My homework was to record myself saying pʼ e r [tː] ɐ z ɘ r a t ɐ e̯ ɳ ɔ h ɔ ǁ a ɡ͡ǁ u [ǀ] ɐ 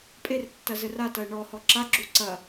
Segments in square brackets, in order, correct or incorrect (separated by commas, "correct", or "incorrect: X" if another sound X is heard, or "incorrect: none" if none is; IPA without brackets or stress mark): correct, correct